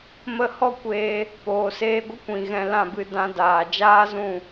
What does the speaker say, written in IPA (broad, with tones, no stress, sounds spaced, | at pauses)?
m ə˦˨ h ɔ˦ kʷ eː˧ | p oː˨ s eː˧ ɡʷ ə˦ kʷ ĩ˨ ɣ ɛ̃˧ l ã˦˨ b ɨ˧ d ã˧ d aː˨ d͡ʒ aː˦ z ũ˦˨